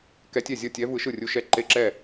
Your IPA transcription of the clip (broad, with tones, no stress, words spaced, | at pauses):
kɛ˧˥tʲɛ˥˩zʲʌ˥˩tʲɛ˧˥ vɯ˧˥ʃɯ˥˩rʲu˧˥ʃɛ˧˥ ǃe˥˩ǁɛ˥˩